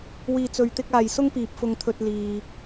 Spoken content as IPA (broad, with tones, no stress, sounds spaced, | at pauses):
w iː˨ t͡s ɵ˨ ɥ t̪ ɪ˧ k̚ aː˨ j s ʊ˥ ŋ p iː˨ p̚ f ʊ˧ ŋ t̪ʰ ɵ˧ t̚ l iː˨